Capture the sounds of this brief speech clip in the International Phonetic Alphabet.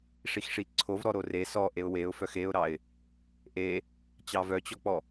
ʂ i x ʂ i ǀʰ o v ɾ ɔ ɾ o r e s ɔ ʔ e ʊ̯ w e ʊ̯ f œ x e ʊ̯ ɾ ɑ ɪ̯ | ʔ e | t͡ɕ ɑ v œ t͡ɕ ɔ k͡p ɔ

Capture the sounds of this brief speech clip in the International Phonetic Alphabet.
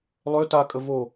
lˠ ø t a kʼ ə v o

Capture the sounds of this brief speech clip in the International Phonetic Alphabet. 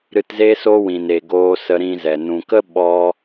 ɾ ɨ˧ t z e˦ s o˦ w ĩ˨ n e˨ ɡ oː˧ s ə˧ ɾ ĩ˧ z ɛ˨ n ũ˨ k ə˦ ɓ ɔ˦

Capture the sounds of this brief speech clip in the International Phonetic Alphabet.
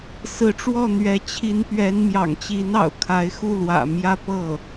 s ɹ̩˧˥ ʈ͡ʂ w ɔ˥˩ n̪ ɥ ɛ˧˥ t͡ɕʰ i˧˥ n p ɥ ɛ˧˥ n m j ɑ̰˨˩ ŋ t͡ɕ i˧˥ n ɑ̰˨˩ ʊ̯ kʰ a˧˥ ɪ̯ x u˥˩ l w ä̰˨˩ m j ä˥ p ɤ˥˩

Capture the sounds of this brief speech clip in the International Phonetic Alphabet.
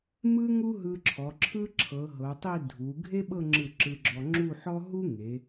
m ɯ˥ ŋ u˥ ɦ ɯ˧ ǁʰ ɔ˩˧ ǁʰ ɯ˥ ǁʰ ɤ˩˧ ɦ ɤ˩˧ tˤ i˥˧ dʱ u˩˧ ɡʱ e˥ ɓ ɤ˥˧ ŋ͡ǁ ɯ˧˩ ǁ ɯ˧ ɡ͡ǁ ɔ˧ ŋ͡ǁ u˥˧ ħ ɔ˥ ɦ u˥ ŋ e˩˧

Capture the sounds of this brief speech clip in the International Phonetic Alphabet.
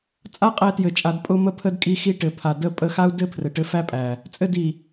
t͡sʼ a˦ qʼ æ˧ t j ɘ˨ t͡ʃʼ a˨ d pʼ ʊ˧ m ə˧ pʰ ə˧ d kʼ i˧ x i˧ ʈ ɘ˨ pʰ a˨ d ə˦˨ pʼ ə˦˨ x a˦ u̯ d ɘ˦ pʰ r ɘ˨ ʈ ɘ˧ f æ˦ pʼ æ˨ | t͡sʼ ɘ˦˨ d i˨

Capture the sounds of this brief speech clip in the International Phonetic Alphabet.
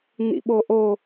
n̪ ḭ ɓ o ʔ o

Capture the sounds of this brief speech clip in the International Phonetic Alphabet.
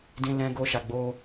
d ĩ˧ l ɛ̃˧ ɡ o˧ ʃ a˨ ɡ͡b o˧

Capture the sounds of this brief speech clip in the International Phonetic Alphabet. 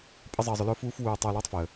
pʼ ə˥ zˤ əː˧ zˤ ʊ˧ l ʊː˥ f uː˥ f w uː˧ tˤ oː˧ l w ə˥ tˤ f əː˩

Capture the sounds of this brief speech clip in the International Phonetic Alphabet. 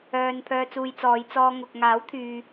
œː˨ n pʰ œː˧ t͡s uː˧ j t͡s ɔː˨˧ j t͡s ɔː˧ ŋ ʊ˨ k̚ ŋ aː˨˥ w t̪ʰ yː˨

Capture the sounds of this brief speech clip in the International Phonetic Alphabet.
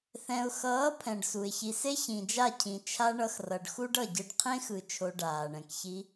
θ ɛ̃˨ ʊ̯ x ʌː˨˦ pʰ ɛ̃˨ ɖ s u˨ ɪ̯ ç i˨ s e˦ ç ĩ˨ d͡ʒ a˦˨ cʰ ĩ˨ t͡ʃʰ a˦ ɳ ʌ˧ x r ʌ˨ ɖ x u˦ ɖ ʌ˦˨ ɟ ɯ˧ ɖ qʰ ẽ˦ x ɯ˨ t͡ʃʰ o˧ ɖ aː˨ ɳ ɛ̃˨ k ç i˧

